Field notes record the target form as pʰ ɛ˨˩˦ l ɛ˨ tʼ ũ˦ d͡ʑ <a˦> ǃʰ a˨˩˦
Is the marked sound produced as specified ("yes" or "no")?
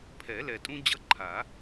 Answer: no